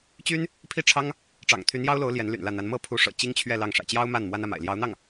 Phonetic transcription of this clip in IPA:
t͡ɕ y˥ n | pʰ i˥˩ ʈ͡ʂʰ ɑ˥ ŋ | ʈ͡ʂ ɑ̰˨˩ ŋ t̪ʰ y˧˥ n j ɑ˥ ʊ̯ l o˧˥ ʊ̯ l j ɛ˧˥ n l y̰˨˩ n l ä˥˩ n̪ a˧˥ n m ɤ˥˩ pʰ u˧˥ ʂ ɤ̰˨˩ t͡ɕ i˥ ŋ t͡ɕʰ ɥ ɛ˥˧ l ɑ˥˩ ŋ ʂ ä̰˨˩ t͡ɕ j ɑ˥ ʊ̯ m a˥˩ n m w a˥ n ä˥˩ m a̰˨˩ ɪ̯ l j ɑ˧˥ ʊ̯ n̪ ɑ˥˩ ŋ

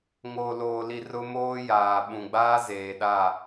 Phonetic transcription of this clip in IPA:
ŋ oː˨ l oː˨ l i˨ r ʊ˦ m oː˦ j aː˨ ɓ ũ˨ ɡ͡b aː˦ z eː˨ ɗ a˦˨

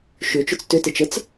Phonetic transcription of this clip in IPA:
ʃ ʏ t͡ʃ ʏ t͡s t ʏ t e t͡ʃ ə t͡s

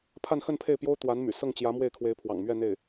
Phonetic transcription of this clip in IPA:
pʰ a˥˧ n x ə˥˧ n pʰ e˥˩ ɪ̯ p j o˥ ʊ̯ t̪ w a˧˥ n m y̰˨˩ s ɤ˥˩ ŋ t͡ɕ j ä˧˥ m w e˥˩ ɪ̯ kʰ w e˧˥ ɪ̯ pʰ w ɑ̰˨˩ ŋ m ɥ ɛ˥˧ n̪ e˥˩ ɪ̯

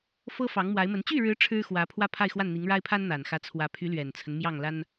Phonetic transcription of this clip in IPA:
f ɤ˥ f ɑ˧˥ ŋ m w a˧˥ ɪ̯ m ə˧˥ n t͡ɕ y˥˩ ɻ ɻ̩˧˥ ʈ͡ʂʰ ɻ̩˥ x w ä˧˥ pʰ w ä˥ pʰ a˥˧ ɪ̯ x w a˥˩ n n̪ i˧˥ ŋ ɻ a˥ ɪ̯ pʰ a˥ n n̪ a˨˩ n x ä˧˥ t͡sʰ w ä˧˥ pʰ y˧˥ l ɥ ɛ˨˩ n t͡sʰ ə˦ n m j ɑ˥˩ ŋ l a˥ n

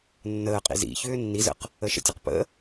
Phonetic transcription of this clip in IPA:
nː əː qʼ ḭ z ḭ ç ʏː nː i z ə̰ q | ə ʃ ə̰ tʲ ə q p ə̰

